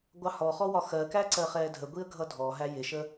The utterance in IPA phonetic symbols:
ɡʷ ɑ h ɔ χ ɔ w ɒ x ɜ k æ ǀ ɜ χ ɛː dʱ ə ɡʷ i ə̯ ɡʱ ʌ dʱ ɔ ɦ æ j ɪ ʃ ə

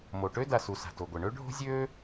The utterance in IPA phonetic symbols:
m o˩ ʈ ø˥ d a˩ s u˩ s a̤˩ t o˩ ɡʷ e˩ ɳ ø˥ ɖʱ o̤˥ zʲ øː˥

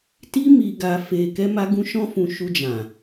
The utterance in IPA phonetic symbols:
t i˦ m i˧ ɡ a˧ f e˧ k ɛ˦ m a˦ ɡ ũ˦ ʃ ɔ̃˦ f ũ˧ ʃ u˧ d͡ʒ ã˨

